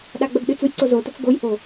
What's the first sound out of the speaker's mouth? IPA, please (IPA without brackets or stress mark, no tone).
ɗ